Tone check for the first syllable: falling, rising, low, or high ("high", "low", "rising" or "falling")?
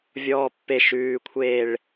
low